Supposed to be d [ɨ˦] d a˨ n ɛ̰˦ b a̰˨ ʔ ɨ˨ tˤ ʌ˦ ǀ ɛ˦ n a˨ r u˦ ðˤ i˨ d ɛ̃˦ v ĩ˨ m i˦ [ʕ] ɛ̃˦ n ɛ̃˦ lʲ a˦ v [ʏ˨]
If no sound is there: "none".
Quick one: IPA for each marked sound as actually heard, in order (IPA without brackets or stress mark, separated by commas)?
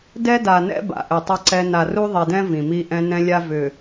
ɛ˦, ʔ, ʏ˨